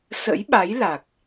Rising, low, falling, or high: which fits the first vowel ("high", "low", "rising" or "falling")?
rising